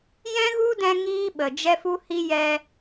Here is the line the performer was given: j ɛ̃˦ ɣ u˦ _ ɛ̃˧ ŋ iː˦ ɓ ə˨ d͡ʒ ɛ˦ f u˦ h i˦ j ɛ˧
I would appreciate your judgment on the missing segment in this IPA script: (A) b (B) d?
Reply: B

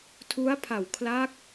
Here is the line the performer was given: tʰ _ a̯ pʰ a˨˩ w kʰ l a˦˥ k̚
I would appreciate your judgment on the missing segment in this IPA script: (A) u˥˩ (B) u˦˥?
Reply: B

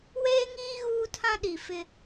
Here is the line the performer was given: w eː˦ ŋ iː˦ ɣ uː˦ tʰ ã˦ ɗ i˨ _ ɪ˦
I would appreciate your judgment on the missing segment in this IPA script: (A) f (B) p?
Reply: A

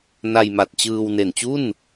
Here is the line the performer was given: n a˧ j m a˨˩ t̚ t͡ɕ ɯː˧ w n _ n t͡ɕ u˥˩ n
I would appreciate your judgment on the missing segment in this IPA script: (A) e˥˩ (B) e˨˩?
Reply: B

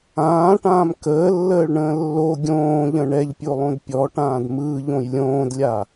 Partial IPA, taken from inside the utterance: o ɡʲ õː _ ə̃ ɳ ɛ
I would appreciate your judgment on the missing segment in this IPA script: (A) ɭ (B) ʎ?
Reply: B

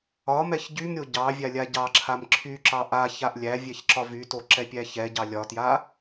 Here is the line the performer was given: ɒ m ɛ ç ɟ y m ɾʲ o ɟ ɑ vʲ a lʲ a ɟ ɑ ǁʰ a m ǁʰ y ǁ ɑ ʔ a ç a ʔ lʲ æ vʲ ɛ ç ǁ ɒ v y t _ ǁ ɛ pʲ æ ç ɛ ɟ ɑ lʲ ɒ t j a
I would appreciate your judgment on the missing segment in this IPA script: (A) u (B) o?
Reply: B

